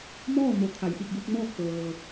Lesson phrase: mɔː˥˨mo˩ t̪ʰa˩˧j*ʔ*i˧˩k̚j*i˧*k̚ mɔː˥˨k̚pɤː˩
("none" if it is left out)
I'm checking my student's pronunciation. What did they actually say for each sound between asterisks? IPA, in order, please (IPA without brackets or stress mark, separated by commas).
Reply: ʔ, i˧